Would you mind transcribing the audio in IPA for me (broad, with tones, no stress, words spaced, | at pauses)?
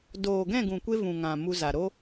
doː˨ɡɛ̃˦˨ɡũ˨kʷe˧ vũ˨ŋã˨ mu˧za˨ ɾo˦